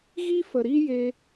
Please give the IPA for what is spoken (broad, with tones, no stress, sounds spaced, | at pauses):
ɣ i˦ f ə˨ ɾ i˦ j e˧